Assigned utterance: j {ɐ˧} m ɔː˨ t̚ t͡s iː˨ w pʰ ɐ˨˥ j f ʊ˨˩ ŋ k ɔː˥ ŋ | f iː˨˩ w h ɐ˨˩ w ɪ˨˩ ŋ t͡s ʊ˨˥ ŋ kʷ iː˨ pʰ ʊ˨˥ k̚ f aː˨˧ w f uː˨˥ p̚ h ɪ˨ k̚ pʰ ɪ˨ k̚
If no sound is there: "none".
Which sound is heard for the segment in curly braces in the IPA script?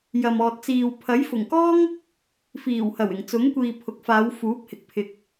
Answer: ɐ˨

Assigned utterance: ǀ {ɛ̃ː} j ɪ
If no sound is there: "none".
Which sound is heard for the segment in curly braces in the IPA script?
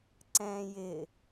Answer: ɛ̃ː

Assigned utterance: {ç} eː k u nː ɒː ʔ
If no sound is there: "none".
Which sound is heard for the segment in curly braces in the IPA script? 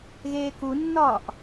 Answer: ɣ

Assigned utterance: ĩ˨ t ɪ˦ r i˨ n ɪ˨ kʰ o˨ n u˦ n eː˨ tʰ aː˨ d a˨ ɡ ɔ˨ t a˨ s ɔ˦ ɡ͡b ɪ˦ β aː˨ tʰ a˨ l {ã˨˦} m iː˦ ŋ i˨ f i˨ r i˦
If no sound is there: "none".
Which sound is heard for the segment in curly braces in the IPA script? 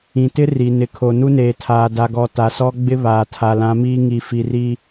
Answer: ã˨˦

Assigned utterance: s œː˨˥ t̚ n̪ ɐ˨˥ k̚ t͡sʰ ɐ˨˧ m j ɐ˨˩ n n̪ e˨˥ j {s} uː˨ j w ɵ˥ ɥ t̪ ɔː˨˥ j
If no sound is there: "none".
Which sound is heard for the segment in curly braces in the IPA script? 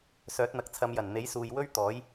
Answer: s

